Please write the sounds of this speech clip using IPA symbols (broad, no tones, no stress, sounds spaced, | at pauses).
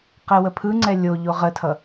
q ɛ w ə pʰ ɯ ŋ͡ǀ ɛ lʲ o ʎ o ʁ ə tʰ ʌ